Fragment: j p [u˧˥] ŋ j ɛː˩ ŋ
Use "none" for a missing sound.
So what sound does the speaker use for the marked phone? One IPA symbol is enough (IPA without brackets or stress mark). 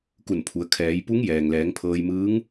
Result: u˧˥